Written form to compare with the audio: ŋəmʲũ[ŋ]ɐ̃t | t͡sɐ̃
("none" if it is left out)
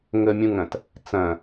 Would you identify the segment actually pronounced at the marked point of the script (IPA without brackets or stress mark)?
ŋ